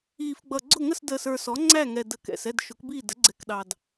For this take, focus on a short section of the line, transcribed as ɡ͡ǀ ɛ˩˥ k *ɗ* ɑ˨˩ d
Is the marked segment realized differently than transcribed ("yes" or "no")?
no